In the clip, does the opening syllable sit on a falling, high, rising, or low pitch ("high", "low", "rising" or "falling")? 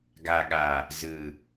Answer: low